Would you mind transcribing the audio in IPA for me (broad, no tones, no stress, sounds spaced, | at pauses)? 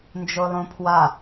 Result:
n d͡ʒ o lˠ õ pʰ w a